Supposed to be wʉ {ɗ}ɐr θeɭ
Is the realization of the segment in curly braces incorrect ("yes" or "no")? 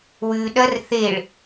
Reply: no